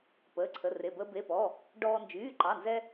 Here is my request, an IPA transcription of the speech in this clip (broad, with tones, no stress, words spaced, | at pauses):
pəː˩˧˩ǀʰə˩˧˩re˩˧˩ bəː˧be˩˧˩pɔ˩˧˩ | ɖɔː˧ nd͡ʒyː˩˧˩ǃɑ˩˧˩nzɛ˧